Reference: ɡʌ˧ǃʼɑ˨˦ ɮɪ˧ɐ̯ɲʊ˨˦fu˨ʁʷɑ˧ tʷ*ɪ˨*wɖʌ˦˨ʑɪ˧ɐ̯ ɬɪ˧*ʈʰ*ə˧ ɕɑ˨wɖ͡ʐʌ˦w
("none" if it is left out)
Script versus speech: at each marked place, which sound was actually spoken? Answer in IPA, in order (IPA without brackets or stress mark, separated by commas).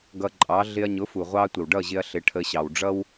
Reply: ɪ˨, ʈʰ